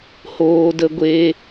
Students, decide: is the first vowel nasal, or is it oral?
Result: oral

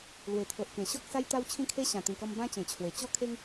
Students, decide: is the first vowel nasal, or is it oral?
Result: oral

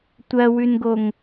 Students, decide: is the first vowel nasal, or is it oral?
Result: oral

